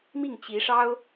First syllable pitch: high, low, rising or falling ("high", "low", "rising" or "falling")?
falling